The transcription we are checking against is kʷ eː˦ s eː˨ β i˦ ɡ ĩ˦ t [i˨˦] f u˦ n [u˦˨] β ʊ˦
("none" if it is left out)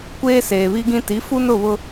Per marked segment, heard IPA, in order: i˨˦, ʊ˦˨

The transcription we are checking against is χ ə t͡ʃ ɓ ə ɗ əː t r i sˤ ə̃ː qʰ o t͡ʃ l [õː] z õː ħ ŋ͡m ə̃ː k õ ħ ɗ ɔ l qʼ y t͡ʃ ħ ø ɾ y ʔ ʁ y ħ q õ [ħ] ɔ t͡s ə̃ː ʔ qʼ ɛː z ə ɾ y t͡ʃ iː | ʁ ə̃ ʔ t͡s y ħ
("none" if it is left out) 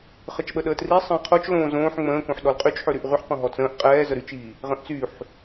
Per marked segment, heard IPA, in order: õː, ɦ

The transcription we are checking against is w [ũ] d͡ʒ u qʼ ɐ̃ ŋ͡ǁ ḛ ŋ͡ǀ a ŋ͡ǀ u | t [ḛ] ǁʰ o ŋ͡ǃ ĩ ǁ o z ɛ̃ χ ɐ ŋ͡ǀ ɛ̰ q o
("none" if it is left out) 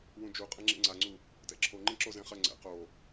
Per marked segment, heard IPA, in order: ũ, ɛ̰

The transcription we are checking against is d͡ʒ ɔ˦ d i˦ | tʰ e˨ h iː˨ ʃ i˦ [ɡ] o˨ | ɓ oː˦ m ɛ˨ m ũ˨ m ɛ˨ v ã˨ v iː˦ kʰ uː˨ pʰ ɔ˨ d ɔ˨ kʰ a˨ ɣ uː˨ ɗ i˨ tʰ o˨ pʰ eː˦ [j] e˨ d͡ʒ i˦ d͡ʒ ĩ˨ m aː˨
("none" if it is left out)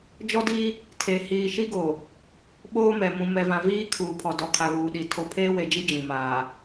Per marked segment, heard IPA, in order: ɡ, w

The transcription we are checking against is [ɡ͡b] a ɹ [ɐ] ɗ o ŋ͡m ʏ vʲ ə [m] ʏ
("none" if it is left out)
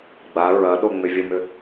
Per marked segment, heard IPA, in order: ɡ͡b, ɐ, m

